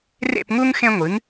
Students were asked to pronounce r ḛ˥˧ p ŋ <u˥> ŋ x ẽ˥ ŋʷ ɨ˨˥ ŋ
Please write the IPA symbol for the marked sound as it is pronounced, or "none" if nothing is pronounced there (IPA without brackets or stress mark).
u˥